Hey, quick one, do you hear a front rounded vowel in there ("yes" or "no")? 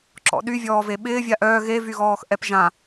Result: yes